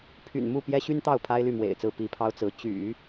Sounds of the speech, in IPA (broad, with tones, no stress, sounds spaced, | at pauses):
pʰ y̰˨˩ n m u˥˩ p j ɛ˥ ɕ y˥ n t̪ ɑ˥˩ ʊ̯ pʰ a˥ ɪ̯ l y˥˩ m w ḛ˨˩ ɪ̯ t͡s ɹ̩˥˩ p i˧˥ pʰ ɑ˥ ʊ̯ t͡s ɹ̩˧˥ t͡ɕ y̰˨˩˦